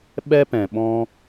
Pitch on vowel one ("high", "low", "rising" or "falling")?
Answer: high